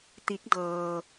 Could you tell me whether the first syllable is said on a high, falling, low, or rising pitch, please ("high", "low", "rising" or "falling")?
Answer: rising